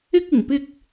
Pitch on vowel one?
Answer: high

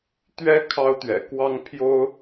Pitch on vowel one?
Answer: high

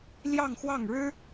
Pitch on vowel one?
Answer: falling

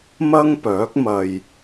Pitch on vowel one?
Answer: high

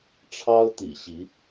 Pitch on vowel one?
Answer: high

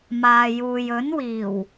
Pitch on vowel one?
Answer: low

